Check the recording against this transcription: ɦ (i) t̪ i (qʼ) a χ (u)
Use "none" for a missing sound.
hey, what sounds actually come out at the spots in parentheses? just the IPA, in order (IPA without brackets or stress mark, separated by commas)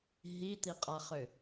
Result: i, qʼ, ʏ